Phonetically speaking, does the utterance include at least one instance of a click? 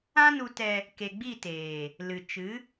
no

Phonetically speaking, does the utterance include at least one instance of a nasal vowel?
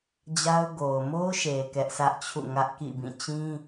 yes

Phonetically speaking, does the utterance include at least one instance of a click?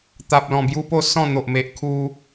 no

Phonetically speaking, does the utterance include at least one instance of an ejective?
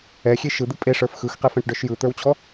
yes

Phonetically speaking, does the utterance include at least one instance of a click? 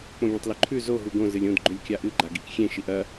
yes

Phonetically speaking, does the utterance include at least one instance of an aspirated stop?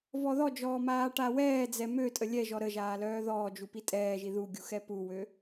no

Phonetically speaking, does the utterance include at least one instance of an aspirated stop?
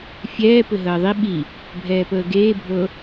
no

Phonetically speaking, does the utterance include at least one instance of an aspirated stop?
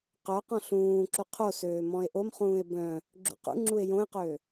yes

